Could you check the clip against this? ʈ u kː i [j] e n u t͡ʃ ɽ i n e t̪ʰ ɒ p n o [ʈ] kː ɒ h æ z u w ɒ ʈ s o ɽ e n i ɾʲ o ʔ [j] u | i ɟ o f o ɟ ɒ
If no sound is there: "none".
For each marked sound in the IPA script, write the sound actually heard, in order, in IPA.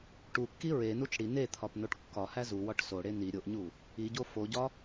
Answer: ɹ, ʈ, ɲ

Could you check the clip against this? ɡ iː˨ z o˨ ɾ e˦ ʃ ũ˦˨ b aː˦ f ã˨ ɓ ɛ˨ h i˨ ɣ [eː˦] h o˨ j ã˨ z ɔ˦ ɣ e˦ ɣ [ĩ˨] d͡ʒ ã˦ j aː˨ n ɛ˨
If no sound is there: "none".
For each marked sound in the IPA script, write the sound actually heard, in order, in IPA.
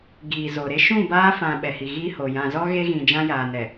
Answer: iː˦, ĩ˨

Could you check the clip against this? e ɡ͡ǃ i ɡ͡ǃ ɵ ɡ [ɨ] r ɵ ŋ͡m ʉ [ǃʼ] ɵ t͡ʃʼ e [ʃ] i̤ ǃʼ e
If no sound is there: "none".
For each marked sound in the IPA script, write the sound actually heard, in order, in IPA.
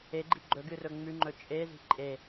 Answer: ɨ, ŋ͡ǃ, z

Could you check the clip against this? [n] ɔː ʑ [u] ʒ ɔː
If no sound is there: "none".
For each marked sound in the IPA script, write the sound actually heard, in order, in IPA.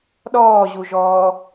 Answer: ɗ, u

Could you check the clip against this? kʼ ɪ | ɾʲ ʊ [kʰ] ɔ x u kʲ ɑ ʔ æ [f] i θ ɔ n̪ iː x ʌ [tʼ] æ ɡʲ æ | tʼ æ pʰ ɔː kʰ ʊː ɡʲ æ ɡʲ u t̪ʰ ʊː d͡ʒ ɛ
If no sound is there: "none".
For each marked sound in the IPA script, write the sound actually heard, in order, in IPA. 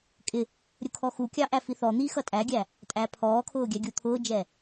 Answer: kʰ, f, tʼ

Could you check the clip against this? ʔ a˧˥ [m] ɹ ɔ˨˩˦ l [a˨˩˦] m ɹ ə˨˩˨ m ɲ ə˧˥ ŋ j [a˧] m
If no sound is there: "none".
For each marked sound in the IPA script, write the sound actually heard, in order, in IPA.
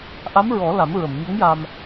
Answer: m, a˨˩˦, a˧

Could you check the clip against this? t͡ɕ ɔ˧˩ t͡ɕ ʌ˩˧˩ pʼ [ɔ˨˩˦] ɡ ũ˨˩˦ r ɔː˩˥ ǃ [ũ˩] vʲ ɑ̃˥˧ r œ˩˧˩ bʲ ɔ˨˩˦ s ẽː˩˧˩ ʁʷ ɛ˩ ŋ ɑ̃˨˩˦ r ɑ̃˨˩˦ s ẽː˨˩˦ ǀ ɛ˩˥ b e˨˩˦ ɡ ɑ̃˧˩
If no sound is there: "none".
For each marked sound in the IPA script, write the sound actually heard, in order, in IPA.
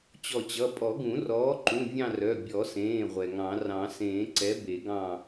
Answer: ɔ˨˩˦, ũ˩˧˩

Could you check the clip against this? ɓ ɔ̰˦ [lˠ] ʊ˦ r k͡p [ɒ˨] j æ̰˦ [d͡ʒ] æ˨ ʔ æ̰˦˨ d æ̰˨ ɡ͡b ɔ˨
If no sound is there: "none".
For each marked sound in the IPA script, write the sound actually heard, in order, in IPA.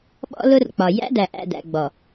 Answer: l, ɒ˨, d

